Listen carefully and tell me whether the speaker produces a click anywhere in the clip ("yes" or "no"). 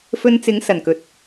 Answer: no